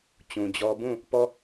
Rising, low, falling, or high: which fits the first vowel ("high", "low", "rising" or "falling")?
low